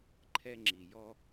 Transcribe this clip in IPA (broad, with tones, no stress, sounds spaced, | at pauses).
ǃʰ ɛ˥ ŋ͡ǁ i˩ j ɔ˥